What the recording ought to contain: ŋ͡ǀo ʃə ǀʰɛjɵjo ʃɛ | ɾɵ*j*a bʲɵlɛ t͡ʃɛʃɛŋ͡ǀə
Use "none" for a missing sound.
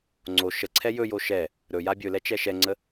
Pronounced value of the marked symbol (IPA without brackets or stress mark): j